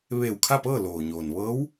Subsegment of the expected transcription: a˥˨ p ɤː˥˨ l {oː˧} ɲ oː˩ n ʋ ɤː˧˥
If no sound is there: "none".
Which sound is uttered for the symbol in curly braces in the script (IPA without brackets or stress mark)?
oː˩